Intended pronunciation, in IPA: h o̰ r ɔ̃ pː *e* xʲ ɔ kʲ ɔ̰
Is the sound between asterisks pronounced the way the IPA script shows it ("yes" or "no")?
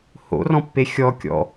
yes